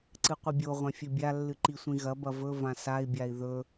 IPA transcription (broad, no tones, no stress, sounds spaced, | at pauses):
ǀ ɨ qʷ ɨ bʲ o ʁʷ ã fʲ ɵ bʲ a lː ɨ ǃ i sʷ ĩ ɣ ɐ b ɐ v ɵ v ã s a i̯ bʲ a i̯ ð ɵ